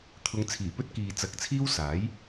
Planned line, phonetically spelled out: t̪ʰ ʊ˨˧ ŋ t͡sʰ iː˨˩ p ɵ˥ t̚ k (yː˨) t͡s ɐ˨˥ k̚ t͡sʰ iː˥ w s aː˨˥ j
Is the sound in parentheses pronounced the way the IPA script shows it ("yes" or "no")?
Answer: no